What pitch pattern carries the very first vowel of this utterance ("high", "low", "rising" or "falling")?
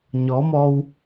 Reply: rising